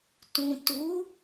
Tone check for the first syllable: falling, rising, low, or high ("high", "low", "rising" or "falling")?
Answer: low